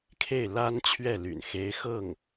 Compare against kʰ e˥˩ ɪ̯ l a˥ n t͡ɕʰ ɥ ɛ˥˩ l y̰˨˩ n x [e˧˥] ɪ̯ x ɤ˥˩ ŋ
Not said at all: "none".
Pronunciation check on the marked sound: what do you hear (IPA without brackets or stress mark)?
e˧˥